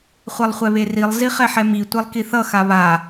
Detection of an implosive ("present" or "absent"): absent